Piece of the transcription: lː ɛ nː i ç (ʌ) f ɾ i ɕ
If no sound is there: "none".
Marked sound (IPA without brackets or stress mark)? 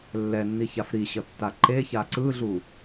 a